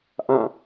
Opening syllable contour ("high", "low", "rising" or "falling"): falling